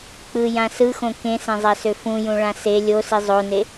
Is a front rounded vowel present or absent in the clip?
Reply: present